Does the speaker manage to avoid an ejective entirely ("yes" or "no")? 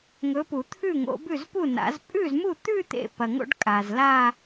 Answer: no